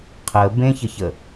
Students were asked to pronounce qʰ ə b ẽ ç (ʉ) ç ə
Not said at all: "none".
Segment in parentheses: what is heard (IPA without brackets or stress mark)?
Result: ə